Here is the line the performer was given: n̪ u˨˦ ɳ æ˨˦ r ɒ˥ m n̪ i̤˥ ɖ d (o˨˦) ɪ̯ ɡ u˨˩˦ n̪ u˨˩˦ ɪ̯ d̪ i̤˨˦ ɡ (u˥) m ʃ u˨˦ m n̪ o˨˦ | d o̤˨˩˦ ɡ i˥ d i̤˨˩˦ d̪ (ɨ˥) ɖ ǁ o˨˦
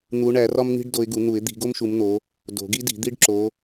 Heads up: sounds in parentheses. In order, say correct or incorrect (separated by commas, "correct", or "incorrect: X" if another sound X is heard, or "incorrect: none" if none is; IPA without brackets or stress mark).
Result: correct, incorrect: o˥, incorrect: i˥